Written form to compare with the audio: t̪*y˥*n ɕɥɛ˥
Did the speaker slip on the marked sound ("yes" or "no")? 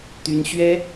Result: no